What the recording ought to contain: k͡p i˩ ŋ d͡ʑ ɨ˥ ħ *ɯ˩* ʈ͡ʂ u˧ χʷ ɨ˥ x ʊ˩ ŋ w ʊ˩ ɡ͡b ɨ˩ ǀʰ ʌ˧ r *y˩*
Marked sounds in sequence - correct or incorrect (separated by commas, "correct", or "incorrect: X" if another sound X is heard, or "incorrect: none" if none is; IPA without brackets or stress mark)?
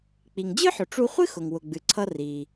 incorrect: ʊ˩, incorrect: i˩